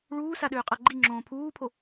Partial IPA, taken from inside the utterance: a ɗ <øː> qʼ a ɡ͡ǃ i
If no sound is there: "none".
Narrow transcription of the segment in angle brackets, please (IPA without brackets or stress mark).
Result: øː